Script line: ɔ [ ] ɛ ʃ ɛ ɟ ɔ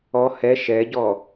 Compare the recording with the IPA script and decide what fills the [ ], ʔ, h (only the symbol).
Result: h